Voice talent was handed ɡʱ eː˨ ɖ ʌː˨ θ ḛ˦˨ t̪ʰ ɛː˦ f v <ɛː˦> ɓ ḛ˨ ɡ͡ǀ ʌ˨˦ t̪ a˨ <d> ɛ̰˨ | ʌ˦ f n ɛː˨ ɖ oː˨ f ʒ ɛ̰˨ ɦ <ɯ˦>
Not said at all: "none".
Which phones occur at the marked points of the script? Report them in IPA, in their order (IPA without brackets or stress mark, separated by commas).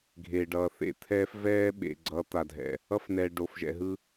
ɛː˦, dʱ, ɯ˦